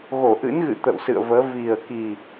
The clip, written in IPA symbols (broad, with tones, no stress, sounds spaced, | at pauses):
ɣ o˧˩ ʔ ɨ̰˧˥ n ɣ ɨ̰˧˨ t̪ ə̰˧˨ w s ɨ̰˧˨ ə̯ v əː˨˦ v i˨˩ ə̯ k i˨˩